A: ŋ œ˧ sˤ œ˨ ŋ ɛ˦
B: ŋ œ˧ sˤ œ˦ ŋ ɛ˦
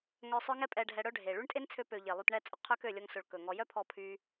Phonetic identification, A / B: B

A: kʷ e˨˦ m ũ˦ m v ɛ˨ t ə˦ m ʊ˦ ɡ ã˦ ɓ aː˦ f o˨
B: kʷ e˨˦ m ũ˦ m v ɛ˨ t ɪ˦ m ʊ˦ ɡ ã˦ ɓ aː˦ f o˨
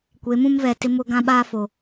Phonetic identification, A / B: B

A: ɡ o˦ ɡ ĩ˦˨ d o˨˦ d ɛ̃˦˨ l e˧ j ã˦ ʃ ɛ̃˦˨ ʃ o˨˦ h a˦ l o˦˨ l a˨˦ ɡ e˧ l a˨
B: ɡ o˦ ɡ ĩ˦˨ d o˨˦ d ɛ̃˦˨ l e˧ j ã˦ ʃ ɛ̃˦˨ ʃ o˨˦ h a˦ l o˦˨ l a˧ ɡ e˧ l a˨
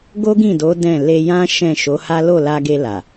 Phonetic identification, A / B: B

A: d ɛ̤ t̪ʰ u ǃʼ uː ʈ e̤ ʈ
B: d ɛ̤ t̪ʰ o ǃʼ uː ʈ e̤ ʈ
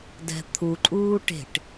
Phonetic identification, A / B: A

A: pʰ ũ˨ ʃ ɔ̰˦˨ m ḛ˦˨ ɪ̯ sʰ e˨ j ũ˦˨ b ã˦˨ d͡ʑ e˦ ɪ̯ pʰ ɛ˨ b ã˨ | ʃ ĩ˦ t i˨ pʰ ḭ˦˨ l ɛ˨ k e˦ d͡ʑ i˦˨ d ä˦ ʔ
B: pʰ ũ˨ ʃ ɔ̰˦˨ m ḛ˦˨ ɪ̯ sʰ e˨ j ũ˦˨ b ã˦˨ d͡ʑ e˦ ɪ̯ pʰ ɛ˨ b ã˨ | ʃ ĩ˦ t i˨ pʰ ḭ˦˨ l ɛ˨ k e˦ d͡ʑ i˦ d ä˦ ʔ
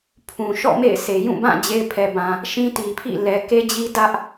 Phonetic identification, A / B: B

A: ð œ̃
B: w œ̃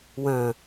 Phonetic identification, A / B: B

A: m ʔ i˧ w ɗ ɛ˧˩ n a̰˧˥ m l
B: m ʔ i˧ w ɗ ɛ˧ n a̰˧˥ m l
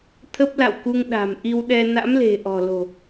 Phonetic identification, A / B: B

